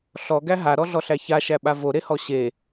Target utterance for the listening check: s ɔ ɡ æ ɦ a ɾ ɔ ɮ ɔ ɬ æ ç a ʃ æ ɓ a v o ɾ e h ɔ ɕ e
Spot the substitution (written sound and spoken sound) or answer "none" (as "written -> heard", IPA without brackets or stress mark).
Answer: s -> ɬ